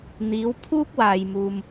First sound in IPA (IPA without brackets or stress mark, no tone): n̪